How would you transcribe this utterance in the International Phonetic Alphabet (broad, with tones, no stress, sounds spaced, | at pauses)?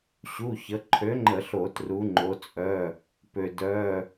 ɕ u˩˧˩ ç ə˩˧ ǃʰ ø˨˥ ŋ͡ǃ ə˧˩˧ ɬ o˧˩˧ t r u˩˧ ŋ͡ǃ o˩˧ t͡sʼ œ˩˧˩ | p ø˩ d œ˩˧˩